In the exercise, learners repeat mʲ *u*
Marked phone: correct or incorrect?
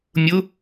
incorrect